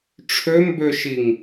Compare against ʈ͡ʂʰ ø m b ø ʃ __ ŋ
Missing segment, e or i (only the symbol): i